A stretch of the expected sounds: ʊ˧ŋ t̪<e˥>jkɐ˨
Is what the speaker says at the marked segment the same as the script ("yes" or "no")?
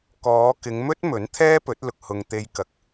no